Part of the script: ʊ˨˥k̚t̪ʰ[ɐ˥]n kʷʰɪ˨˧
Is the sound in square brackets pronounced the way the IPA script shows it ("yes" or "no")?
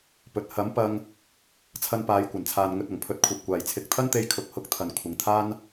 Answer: no